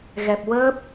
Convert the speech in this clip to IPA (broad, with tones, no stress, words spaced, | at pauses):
ɣɛ˨˩p̚ wəː˦˥p̚